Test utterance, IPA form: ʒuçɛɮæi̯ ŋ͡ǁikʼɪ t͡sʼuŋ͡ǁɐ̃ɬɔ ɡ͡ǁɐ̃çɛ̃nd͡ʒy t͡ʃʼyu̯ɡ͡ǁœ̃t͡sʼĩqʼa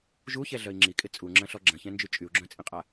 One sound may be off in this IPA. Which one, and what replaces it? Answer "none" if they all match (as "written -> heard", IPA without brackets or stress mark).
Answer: æ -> œ